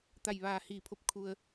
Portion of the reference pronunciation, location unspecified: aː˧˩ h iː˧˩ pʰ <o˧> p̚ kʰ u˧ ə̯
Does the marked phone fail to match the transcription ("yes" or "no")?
yes